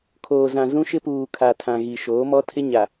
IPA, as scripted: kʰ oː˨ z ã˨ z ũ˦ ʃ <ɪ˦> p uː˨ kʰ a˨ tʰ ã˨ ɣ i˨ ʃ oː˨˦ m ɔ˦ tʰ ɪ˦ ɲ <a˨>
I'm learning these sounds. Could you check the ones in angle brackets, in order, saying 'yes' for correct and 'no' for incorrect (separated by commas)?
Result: yes, yes